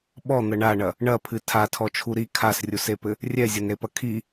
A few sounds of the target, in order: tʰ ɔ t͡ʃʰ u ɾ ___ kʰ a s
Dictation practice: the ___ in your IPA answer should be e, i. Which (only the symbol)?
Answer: i